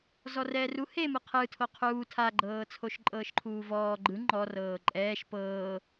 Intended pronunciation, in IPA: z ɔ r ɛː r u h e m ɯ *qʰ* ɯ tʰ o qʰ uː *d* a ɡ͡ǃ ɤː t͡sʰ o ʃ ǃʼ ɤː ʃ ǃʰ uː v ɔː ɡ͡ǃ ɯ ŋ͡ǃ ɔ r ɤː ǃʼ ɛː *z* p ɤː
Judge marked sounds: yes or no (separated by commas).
yes, no, no